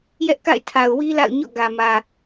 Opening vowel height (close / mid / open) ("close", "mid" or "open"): mid